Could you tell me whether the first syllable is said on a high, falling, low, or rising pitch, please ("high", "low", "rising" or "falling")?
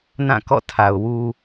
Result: falling